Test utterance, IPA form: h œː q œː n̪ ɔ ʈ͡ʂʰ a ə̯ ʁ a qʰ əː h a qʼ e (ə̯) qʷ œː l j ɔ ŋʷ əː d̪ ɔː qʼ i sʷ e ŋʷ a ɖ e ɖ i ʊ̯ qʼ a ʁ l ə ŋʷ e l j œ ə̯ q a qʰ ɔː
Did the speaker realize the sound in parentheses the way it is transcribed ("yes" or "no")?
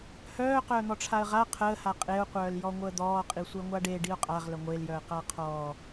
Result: no